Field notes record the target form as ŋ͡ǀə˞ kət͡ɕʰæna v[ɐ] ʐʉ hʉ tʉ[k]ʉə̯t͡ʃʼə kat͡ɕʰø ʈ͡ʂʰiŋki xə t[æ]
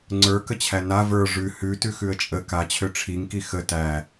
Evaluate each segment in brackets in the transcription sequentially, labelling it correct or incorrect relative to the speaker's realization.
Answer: incorrect: ə˞, incorrect: x, correct

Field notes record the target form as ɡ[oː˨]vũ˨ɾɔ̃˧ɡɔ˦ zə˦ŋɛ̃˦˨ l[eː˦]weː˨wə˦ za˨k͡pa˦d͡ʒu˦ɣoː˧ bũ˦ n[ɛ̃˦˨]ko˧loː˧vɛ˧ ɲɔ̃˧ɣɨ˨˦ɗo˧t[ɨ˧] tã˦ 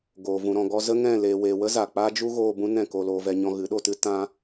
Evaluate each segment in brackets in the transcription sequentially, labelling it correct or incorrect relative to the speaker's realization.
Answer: correct, incorrect: eː˨, correct, incorrect: ɨ˦

